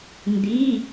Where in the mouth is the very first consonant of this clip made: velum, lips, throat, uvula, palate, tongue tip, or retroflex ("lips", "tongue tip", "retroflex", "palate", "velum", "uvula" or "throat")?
tongue tip